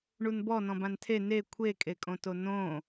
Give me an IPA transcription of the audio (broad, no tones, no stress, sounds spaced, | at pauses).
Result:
ɳ u n b ɔ n ɔ̃ b ã n tʰ e n e kʷʰ e kʼ e kʼ õ t o n õ